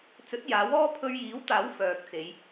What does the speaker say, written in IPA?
t͡sɵ˨˥t̚ jaː˨˥wɔː˥ pʰɵ˧ɥjiː˨˥wt̪aː˨˥w fœː˨k̚ t͡se˨˧j

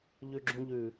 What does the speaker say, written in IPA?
ʎʉɡ͡ǁũʎʉ

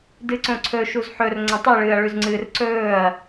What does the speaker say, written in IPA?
dɨǀõǀʰɵ ʃuzħɵr ŋ͡ǀɐ̃tˤi ɭɨːɐ̯ɭʉzŋ͡ǀɨːrǀɵːɐ̯

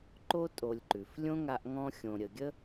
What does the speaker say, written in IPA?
ǃo˦tʼo˨lʲǃʉ˩f lʲõ˥ŋa˦ʔŋɔ̃˦ xʲõ˨ɾʲə˨ɡʲə˥

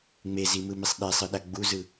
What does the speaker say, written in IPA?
ŋ͡mezimɯmisˤ ɗesˤɯɗa ɡ͡buzɯ

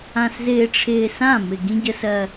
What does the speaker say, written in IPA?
ã˨szɪː˨ʈ͡ʂʰɪː˨sã˦˨ mɪ˨ ɡĩ˦ɟə˦sɜ˦

